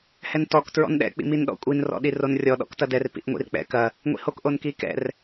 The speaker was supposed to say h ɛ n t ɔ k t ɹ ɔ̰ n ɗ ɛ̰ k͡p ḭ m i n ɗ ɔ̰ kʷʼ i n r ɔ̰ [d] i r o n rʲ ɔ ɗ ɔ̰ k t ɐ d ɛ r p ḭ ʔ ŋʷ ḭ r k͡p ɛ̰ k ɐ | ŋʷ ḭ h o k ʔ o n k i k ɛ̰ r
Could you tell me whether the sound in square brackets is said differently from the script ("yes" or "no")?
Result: yes